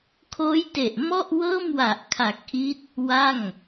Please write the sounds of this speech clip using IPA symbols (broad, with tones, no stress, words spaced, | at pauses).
kʰoː˦˥j te˨˩ʔmɔ˥˩ʔ wɤː˥˩mwa˨˩ʔkʰa˨˩k̚ʔi˦˥t̚ | wa˥˩ŋ